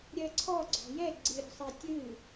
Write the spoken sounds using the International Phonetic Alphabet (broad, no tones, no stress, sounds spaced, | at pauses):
ɾʲ ɜ ǀʰ ɔ ɡ͡ǀ ɔ̤ j ɛ ɡ͡ǀ ɨ ɾʲ ɔ̤ sˤ ɛ tʲ ɨ